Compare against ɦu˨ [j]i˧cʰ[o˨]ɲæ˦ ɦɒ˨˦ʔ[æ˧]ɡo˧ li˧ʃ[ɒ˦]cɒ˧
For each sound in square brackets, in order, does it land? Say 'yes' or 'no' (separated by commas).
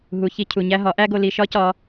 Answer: no, no, no, yes